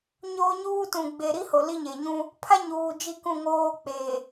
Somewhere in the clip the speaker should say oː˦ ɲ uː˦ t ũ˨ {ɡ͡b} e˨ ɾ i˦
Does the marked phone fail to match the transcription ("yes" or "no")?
no